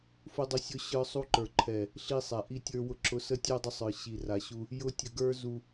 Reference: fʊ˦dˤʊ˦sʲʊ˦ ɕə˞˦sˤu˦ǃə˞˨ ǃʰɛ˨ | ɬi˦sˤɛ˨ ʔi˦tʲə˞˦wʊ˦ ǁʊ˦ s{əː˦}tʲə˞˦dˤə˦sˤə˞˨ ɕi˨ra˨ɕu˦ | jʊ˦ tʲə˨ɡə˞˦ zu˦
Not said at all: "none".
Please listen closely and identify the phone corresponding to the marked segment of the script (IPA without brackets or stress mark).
ə˦